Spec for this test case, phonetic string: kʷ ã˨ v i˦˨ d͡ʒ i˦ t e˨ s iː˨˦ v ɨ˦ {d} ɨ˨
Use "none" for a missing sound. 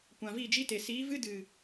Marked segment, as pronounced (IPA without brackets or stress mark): d